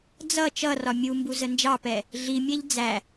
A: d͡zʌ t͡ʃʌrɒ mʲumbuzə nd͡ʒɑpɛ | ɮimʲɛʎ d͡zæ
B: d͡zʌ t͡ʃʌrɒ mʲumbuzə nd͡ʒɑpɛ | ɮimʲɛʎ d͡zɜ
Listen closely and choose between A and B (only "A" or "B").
A